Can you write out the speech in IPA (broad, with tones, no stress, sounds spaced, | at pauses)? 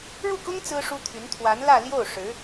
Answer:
ɻ u˥˩ k ʊ˥ ŋ t͡s ɹ̩˥ ʂ u˥ t̪ʰ y˧˥ n t̪ʰ w a˧˥ n l ä˥˧ l j o˥˩ ʊ̯ ʂ ɻ̩˧˥